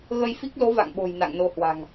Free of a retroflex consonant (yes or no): yes